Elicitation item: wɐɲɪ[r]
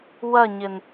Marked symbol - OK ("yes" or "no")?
no